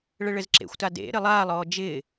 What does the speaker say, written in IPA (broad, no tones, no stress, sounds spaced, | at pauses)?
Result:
ɭ ɘ ɭ ɘ z ǁ ḛ xʷ t a d ḛ ɾ ɘ lˠ aː lˠ ɔː d͡ʒ ɪː